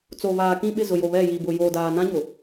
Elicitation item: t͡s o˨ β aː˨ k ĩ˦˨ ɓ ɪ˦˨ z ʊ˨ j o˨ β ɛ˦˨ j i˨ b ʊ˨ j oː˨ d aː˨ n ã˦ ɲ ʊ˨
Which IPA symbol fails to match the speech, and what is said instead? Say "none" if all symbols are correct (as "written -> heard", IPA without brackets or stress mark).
none